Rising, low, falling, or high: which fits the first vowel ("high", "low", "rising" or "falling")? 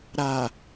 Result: low